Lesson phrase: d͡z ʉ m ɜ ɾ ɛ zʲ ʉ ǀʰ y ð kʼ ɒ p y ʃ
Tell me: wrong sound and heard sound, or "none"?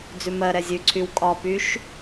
ð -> w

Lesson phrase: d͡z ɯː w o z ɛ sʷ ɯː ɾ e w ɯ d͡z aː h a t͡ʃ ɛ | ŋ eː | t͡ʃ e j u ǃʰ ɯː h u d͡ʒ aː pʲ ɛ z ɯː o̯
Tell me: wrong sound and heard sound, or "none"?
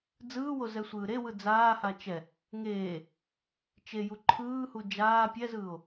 none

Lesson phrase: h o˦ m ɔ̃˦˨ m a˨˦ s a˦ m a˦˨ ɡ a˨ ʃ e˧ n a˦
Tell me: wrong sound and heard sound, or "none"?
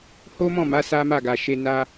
none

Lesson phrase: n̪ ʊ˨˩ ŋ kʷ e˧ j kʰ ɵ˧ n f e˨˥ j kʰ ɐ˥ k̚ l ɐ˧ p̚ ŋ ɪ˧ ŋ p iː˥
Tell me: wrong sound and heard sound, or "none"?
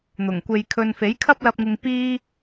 k̚ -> p̚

